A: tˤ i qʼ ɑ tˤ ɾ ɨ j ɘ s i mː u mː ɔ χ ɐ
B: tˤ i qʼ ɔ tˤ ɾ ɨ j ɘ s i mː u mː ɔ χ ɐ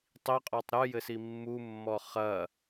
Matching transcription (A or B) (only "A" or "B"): B